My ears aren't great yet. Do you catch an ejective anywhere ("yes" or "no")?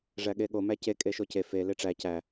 yes